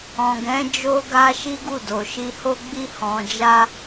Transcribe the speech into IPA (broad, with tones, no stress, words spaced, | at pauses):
ɔ̃˨ɡɛ̃˨˦ d͡ʒo˧ɡa˧ ʃi˦ɡu˦˨do˨ ʃi˨ho˧ɡ͡bi˧ hɔ̃˨d͡ʒa˧